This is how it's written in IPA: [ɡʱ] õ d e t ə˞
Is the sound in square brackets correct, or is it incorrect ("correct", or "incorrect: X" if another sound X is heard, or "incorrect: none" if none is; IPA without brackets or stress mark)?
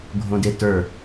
correct